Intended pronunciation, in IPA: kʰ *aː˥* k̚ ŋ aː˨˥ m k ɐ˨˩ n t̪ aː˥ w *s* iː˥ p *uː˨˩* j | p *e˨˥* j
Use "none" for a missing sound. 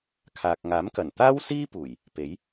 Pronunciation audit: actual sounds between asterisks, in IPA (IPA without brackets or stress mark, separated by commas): aː˨, s, uː˨˩, e˨˥